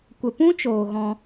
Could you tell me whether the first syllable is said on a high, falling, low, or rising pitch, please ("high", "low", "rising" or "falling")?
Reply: low